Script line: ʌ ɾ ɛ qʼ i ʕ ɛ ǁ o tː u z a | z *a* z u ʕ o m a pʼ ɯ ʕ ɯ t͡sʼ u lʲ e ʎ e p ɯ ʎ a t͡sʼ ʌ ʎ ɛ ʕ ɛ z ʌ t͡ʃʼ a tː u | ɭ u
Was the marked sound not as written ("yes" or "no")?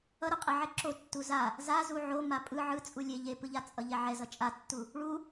no